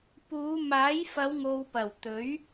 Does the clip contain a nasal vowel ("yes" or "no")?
no